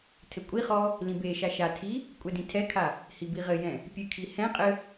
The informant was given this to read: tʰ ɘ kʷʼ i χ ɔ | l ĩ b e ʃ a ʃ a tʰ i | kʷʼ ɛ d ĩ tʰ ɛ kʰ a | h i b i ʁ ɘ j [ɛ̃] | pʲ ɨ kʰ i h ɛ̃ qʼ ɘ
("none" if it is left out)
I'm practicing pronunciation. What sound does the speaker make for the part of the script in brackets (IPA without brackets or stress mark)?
ɛ̃